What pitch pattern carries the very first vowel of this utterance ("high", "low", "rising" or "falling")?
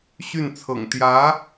falling